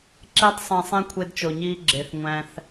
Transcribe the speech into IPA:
ǁe˧tˤsˤẽ˨sˤẽ˧ kʷʰe˧dt͡ʃo˨ɲiː˧ ɡ͡ǁe˨θŋʷæ̃˧θ

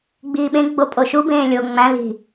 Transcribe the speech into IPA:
ɡ͡biːɓẽ ɡ͡bopʼoʃu bẽːlʲo ŋ͡mæ̃l i̤

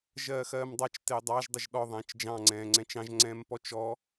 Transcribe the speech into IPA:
ʒɜːxɜːmdˤɑt͡ʃ tɪːdˤɑʒ dˤɪʒɗɔ ðˤɛ̃ːt͡ʃd͡ʒɑ̃ ŋ͡ǀɛ̃ːŋ͡ǀɛ̃t͡ʃɑ̃ʒ ŋ͡ǀɛ̃ːmpɔt͡ʃɔ

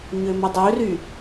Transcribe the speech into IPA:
ɲømədˤøry

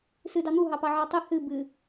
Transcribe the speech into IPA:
sɨdɑ n̪uɦɑpɑʕɑ tˤɨ hɨ bɨ

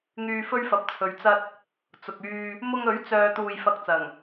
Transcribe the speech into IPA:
ŋyː˧fɵ˥ɥfɐ˨˥p̚t͡sʰɵ˨ɥ t͡sɐ˧t̚ | t͡sʊ˨k̚yː˧ | mʊ˧ŋ ɵ˨˥ɥt͡sœː˨ t̪uː˧jfɐ˧k̚t͡sɐ˨˩ŋ

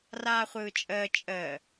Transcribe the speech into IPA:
raːχʷɯːt͡ʃʼəː t͡ʃʼəː

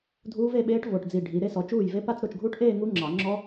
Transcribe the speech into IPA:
dʱuː˦˥ve˥˧ɓeː˦˥ʈ vo˧˩ʈd͡zi˧˩ ɖʱi˨˦ɾe˦˥ sɔ˨˦t͡ʃuː˥˩jve˦˥ pa˥˧t͡s ɾo˥˩t͡ʃɡʱuː˦˥ʈʔeː˥˧ ŋu˦˥ŋ͡ǁɑ˨˩˦ ŋ͡ǁɔ˦˥

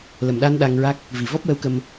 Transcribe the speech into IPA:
lə˨˩mɗa˧n ɗa˧ŋɹa˦˥k̚ | vi˨˩vɔ˦˥p̚wə˧˥wkə˧m

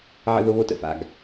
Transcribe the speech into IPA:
ʕə̰˦ðo˦βo˦tə̰˨ fa̰˦ɡ

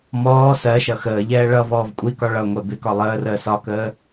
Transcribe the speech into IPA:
mɔː sɜʃʌ xəːʎɛː ɭʌ vɔːvkʷʼikɒ ɭʌŋʷɛ bɪkɒ lˠəːrəː sɒkəː

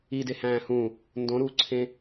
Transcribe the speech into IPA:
i dehæ̃ːhũ | ndõɾuːǀʰẽ

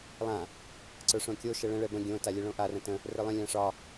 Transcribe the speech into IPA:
lˠã | ǀə˞ʂõkʲo ʃɛɭə̃ ɭɛbə̃ ɡʲõ talʲɛɭõʔa rə̃tə̃ | rə˞lˠə̃ lʲãʂɒ

